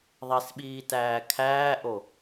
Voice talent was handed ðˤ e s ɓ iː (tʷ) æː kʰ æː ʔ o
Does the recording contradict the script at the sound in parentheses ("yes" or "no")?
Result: yes